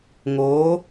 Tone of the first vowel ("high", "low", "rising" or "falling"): rising